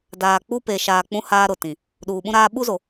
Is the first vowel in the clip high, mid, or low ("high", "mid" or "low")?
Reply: low